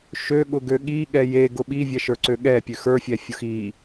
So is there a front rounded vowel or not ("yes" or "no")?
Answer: yes